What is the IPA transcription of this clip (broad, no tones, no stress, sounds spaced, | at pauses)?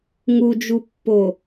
ŋ u d͡ʒ u pː o